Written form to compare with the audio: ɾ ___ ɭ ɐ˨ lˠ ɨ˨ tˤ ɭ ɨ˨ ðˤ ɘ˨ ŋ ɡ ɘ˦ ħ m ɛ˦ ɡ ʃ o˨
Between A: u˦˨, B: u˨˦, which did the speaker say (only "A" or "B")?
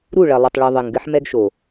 A